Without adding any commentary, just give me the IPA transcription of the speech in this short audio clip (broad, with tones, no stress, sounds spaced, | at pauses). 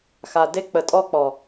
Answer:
x a˨ d e˦ k͡p ə˨ tʼ ɔ˦ k͡p ɔ˨